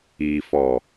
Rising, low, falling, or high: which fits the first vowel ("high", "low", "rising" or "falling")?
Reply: low